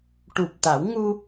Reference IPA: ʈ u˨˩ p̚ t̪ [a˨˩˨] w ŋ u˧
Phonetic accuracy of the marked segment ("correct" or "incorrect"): incorrect